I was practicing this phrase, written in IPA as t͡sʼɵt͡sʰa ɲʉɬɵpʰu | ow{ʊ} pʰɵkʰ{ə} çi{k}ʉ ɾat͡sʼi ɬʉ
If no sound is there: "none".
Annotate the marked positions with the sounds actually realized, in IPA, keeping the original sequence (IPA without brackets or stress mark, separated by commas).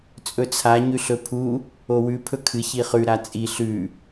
ʉ, ɨ, χ